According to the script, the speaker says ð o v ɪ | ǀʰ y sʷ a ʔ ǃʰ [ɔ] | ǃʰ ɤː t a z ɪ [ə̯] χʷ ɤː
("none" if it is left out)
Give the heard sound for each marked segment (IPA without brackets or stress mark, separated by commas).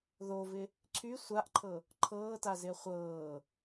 ɤ, ə̯